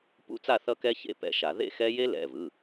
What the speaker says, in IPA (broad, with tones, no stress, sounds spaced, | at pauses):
p ṵ˦˥ t͡s a˥˧ θ ʌ˦˥ k ɛ˦˥ ç ḛ˥˧ p ɛ̰˨˦ ʃ a˨˩˦ ð ḛ˥˧ x ɛ˦˥ j e˦˥ l ɛ̰˩˧˩ v ɯ˩˧˩